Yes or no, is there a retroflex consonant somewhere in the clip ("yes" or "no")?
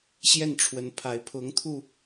yes